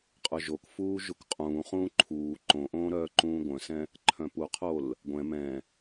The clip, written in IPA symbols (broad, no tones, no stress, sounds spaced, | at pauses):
qʼ œ ʒ o k f uː ʒ u k qʼ ũː χ ũː ǃʰ uː ǃ õ ʔ õː ɾ œː ǃ ũː ɡʷ œ̃ s ɛ̃ | ǃʰ œ̃ p u qʰ o l | ɡʷ ɛ̃ m ɛ̃